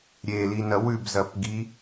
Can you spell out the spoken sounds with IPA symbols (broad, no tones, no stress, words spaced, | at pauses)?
ɾʲelinɐ wʉbzɐpɡi